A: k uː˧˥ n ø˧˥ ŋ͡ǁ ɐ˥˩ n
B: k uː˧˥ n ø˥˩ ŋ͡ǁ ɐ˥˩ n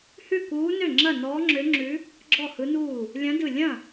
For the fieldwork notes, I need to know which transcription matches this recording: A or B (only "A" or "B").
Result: B